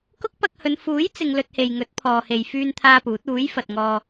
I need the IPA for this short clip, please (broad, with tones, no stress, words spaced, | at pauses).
kʊ˥k̚pɐ˧k̚hɵ˨˧n fuː˨˥jt͡sɪ˨ŋ lɵ˧t̚he˨jŋɵ˨˥t̚ pʰɔː˨he˨jfyː˧nt̪ʰaː˧ puː˨˥t̚ uː˨˥jfɐ˨t̚ŋɔː˧